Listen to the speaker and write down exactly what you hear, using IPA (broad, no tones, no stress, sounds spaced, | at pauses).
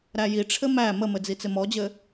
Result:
ɾ æ j i ʈ͡ʂʰ ɘ m æ m ə m ɘ d͡z i t͡s ɪ m ɔ d͡ʑ ɘ